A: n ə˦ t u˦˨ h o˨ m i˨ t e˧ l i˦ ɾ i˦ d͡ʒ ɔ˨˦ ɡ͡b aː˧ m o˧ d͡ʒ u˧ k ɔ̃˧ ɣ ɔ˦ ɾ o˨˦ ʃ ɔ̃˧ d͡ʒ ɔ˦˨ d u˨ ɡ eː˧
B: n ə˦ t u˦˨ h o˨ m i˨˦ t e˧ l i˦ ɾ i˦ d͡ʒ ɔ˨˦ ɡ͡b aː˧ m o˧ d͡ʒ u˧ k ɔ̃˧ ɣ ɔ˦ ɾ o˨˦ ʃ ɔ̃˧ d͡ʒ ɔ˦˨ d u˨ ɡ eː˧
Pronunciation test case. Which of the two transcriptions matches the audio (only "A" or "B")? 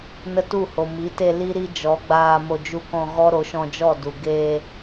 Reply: B